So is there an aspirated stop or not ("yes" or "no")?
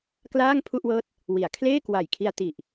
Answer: yes